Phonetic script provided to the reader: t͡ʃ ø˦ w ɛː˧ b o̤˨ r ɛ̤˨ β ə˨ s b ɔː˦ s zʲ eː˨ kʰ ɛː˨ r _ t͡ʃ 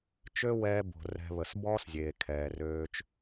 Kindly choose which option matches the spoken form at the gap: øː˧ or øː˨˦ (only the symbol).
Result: øː˧